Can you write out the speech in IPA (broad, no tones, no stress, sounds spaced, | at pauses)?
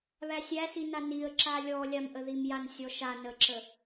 β æ sʲ æ s i n a n i ə̯ ǁ a lʲ ɔ lʲ a m ʔ ə ð i m j a n sʲ ɔ ʃ a n ə ǁ ə